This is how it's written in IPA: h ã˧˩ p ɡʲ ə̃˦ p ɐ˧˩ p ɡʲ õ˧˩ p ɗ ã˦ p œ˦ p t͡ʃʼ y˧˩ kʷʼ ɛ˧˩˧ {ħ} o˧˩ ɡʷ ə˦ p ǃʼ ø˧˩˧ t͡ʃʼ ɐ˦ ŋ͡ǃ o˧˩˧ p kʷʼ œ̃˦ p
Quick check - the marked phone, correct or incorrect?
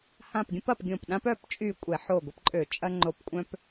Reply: correct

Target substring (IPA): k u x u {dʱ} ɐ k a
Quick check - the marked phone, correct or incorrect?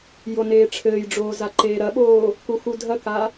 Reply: correct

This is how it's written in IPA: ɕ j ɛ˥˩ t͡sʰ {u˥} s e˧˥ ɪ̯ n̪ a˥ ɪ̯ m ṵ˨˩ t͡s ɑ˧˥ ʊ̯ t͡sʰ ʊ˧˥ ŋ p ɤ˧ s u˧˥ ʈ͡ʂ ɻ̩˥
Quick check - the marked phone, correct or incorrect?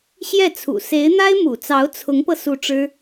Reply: incorrect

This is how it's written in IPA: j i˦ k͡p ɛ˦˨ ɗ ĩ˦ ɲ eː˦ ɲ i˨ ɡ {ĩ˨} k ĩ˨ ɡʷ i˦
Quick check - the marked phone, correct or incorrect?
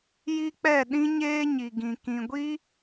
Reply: correct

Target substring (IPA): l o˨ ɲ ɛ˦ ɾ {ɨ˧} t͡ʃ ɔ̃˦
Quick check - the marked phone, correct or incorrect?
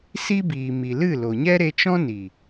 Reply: incorrect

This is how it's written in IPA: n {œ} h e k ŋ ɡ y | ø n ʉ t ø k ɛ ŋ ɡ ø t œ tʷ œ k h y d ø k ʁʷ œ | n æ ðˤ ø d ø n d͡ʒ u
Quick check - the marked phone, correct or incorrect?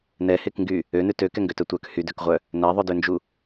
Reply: incorrect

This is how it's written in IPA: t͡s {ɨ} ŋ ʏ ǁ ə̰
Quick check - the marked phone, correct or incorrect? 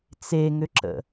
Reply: incorrect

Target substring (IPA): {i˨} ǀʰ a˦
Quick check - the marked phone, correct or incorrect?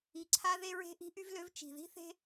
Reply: correct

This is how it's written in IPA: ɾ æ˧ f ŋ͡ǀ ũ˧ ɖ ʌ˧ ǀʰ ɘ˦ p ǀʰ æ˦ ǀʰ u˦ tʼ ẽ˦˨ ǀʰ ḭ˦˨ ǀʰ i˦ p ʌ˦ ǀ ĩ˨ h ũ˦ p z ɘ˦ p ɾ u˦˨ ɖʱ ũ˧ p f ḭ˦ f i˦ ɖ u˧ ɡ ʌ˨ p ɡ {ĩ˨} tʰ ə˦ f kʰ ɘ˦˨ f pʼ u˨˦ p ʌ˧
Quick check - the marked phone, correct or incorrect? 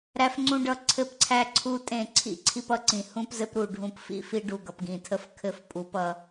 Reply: correct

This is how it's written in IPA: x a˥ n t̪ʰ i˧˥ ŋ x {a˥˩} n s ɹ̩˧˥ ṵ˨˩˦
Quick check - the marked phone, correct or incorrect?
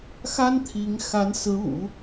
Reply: incorrect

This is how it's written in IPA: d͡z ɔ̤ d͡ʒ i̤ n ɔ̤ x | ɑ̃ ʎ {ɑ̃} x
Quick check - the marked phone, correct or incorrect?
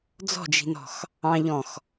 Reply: incorrect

